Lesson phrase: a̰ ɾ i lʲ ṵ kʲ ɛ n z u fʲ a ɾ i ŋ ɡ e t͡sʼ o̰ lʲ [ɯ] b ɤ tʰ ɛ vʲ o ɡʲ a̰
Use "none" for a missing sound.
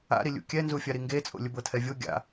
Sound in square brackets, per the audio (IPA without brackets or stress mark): ɯ